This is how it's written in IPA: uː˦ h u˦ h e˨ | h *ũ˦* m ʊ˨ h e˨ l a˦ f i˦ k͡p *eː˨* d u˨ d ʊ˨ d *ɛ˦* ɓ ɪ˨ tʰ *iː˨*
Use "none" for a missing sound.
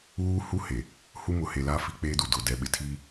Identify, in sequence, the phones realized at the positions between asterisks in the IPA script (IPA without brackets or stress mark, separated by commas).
u˦, eː˦, ɛ˨, iː˦